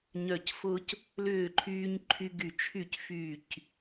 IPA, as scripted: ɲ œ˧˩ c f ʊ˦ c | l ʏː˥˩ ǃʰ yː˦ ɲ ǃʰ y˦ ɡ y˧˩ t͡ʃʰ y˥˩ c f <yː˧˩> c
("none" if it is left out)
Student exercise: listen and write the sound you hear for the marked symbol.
yː˧˩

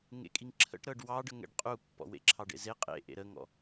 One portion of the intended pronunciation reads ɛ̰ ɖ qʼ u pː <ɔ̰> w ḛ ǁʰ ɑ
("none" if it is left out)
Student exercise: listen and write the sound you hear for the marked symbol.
ɔ̰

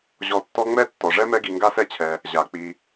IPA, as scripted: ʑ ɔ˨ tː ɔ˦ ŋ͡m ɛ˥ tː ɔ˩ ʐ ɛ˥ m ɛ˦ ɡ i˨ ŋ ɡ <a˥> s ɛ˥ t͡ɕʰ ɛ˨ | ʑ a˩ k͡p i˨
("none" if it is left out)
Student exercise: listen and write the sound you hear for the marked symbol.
a˥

